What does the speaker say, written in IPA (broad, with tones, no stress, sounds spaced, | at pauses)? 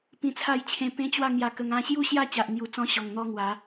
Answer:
p ĩ˧ t͡sʰ a˥˧ j t͡ɕʰ ẽ˧ p ẽ˦ t͡ɕ w a˥˧ ŋ j a˧ k ə˧ ŋ ã˧ ɕ j u˦ ɕ j a˥˧ t͡ɕ a˨ ʔ n̪ j u˨˩ t͡s ɔ̃˧ ɕ ɔ˨˩ ŋ n̪ ɔ˦ ŋ w a˨˦